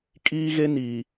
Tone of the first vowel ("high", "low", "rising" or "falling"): high